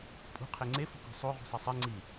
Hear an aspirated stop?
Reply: yes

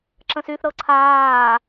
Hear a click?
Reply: yes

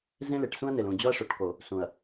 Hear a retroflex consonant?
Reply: yes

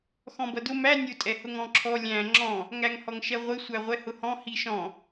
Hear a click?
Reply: yes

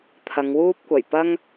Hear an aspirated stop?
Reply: yes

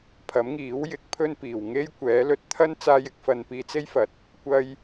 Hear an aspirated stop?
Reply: yes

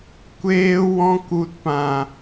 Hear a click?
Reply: no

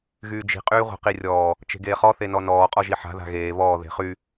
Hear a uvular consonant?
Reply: yes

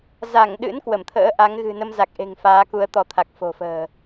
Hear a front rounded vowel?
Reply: no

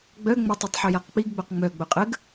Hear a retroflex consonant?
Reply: no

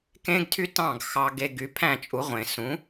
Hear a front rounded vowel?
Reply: yes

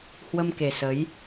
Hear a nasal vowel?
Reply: no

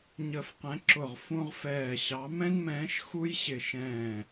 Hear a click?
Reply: yes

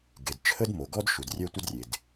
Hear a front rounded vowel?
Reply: yes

